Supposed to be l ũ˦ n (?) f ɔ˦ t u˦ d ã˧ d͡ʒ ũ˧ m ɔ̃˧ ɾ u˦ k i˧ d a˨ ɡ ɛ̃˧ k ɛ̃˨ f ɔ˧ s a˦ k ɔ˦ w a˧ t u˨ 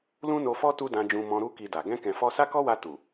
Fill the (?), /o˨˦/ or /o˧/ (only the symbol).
o˧